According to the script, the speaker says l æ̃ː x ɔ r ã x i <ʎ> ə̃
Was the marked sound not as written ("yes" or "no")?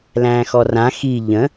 no